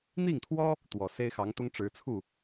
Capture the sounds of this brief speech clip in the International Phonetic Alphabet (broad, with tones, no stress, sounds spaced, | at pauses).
n̪ i˥˩ ŋ t̪ʰ w ɔ˥ | t̪ w ɔ˨˩ s e˥ ɪ̯ x ɑ˧˥ ŋ t̪ ʊ˥ ŋ ʈ͡ʂ ɻ̩˧˥ t͡sʰ u˥˩